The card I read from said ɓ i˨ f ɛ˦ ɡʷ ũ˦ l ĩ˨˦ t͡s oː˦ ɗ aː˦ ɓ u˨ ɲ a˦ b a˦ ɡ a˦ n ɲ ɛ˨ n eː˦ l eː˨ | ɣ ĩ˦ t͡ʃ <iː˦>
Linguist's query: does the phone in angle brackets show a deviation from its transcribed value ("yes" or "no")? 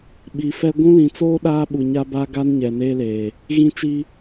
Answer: yes